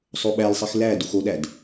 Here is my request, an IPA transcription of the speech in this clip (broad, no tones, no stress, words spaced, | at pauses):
sˤoɓælsˤix læ duxoɗæd